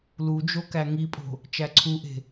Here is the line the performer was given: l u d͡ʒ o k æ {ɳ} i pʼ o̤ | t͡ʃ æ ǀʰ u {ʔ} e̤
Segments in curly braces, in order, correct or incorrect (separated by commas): incorrect, correct